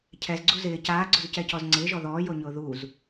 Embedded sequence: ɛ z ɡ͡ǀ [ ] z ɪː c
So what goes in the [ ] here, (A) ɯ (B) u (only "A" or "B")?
B